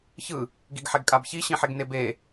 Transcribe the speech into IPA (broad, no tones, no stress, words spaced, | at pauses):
çɯ | ɡiɡħɛɡkʼabçi ɕĩħeɡnebe